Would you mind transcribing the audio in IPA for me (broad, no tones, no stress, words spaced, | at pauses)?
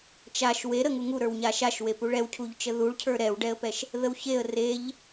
t͡ʃaʃ weɾəŋu ŋuɾə˞w ɲaʃaʃwe puɭɛwcʰuʎt͡ʃə ðuɭcʰə˞ ɾɛwɖɛə̯pɛʃ | ðəwçeə̯ reʎ